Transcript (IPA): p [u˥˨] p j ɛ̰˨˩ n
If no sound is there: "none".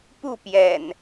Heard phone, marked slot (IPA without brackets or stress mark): u˥˨